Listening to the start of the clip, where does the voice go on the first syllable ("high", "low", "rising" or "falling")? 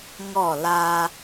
falling